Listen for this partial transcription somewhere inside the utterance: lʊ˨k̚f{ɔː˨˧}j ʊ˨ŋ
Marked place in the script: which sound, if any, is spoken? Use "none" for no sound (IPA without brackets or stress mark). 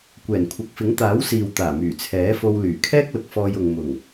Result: ɔː˧